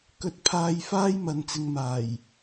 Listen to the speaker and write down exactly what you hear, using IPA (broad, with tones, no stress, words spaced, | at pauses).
kɵ˧t̚pʰaː˧jfaː˥j mɐ˧nt͡sɪ˧ŋmaː˨˩j